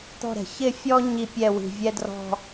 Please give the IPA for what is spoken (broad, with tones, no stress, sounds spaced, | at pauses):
t̪ ɔ̤˦˨ ɾ ɛ̤˩ ç ɪ˦˨ fʲ ɔ˦ ɲ i˦˨ pʲ ɛ˦˨ w i̤˩ vʲ ɛ˦ d r ɔ̤˦˨